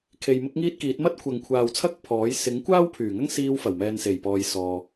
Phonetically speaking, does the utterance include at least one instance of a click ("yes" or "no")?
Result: no